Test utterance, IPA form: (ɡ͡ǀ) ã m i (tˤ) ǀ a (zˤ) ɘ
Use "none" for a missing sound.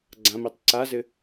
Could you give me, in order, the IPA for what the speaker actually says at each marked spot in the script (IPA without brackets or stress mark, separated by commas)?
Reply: ɡ͡ǀ, tˤ, z